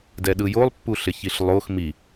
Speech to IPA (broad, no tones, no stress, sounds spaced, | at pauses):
d ɛ ɗ ɯ j o lˠ pː u ɬ ɪ ç i ɬ lˠ o x m i